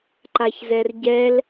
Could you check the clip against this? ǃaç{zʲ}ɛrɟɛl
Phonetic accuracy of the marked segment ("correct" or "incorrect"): incorrect